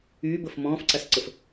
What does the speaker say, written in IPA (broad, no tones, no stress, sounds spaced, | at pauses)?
yː b ə f m ɔ̃ː f ǀ a s ǀ ə f